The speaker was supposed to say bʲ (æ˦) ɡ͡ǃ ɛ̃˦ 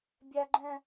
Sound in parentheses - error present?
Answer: no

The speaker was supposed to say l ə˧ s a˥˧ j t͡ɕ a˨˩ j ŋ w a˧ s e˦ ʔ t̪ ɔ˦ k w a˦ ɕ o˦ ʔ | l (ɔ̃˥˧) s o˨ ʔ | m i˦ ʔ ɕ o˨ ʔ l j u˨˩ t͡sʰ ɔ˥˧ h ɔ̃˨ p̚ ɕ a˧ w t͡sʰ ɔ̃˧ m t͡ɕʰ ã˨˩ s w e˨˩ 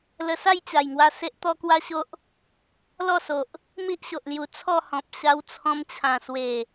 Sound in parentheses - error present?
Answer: yes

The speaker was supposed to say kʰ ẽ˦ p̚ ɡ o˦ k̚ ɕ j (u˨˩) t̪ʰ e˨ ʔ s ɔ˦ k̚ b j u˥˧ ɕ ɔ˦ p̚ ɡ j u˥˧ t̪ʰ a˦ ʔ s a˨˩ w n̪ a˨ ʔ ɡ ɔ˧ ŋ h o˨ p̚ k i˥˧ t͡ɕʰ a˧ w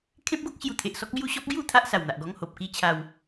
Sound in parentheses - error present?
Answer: no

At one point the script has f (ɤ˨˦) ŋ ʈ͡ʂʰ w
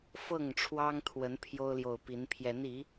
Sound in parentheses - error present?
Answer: yes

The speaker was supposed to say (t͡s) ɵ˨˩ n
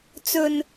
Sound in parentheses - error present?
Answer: no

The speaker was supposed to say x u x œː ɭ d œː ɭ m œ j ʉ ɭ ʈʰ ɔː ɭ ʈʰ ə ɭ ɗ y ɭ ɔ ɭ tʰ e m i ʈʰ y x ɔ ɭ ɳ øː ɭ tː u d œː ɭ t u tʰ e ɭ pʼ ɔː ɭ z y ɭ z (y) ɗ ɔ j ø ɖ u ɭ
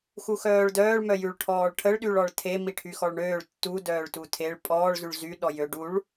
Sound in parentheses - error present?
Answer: no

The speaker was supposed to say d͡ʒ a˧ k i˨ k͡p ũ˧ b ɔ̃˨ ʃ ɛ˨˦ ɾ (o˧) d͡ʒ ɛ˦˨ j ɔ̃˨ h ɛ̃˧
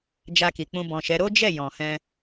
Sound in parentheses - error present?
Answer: yes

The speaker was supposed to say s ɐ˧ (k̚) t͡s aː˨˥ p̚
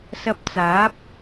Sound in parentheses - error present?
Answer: yes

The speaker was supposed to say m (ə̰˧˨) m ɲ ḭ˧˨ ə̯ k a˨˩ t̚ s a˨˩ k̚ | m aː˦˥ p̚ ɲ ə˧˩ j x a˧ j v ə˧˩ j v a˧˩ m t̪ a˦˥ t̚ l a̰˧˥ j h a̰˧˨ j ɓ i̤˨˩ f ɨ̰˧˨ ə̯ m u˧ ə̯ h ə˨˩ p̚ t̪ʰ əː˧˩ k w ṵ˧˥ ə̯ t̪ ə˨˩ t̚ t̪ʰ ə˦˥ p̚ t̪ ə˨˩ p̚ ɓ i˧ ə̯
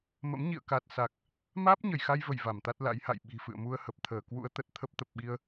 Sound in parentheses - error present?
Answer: yes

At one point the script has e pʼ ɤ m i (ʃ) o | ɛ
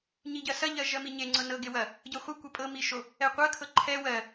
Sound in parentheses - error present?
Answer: no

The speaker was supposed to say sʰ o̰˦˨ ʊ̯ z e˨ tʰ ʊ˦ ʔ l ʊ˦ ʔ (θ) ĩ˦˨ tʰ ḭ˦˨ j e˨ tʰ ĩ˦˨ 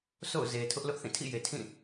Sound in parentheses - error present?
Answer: no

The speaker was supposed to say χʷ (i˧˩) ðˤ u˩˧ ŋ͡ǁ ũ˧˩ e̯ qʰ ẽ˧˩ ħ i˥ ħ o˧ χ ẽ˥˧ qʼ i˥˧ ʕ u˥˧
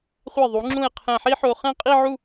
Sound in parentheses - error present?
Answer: yes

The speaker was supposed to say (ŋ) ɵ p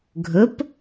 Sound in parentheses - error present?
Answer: yes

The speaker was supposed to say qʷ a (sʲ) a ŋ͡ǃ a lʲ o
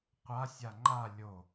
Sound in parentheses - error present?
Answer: no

